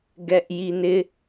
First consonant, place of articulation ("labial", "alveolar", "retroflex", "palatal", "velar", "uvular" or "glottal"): velar